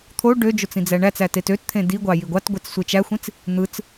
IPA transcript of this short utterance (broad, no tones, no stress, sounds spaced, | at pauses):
t̪ʰ o ɖ ø d͡ʒ o t͡s ĩ d͡z æ ɳ æ t͡s æ t e t ø t t̪ʰ ẽ d i ɡʷ ɑ j i ɡʷ ɑ t ɡʷ e t͡s sʷ e t͡ʃ æ xʷ ĩ t͡s | n̪ ɯ t͡s